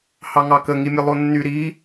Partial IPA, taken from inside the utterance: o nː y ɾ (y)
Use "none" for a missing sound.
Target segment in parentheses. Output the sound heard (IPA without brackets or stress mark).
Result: i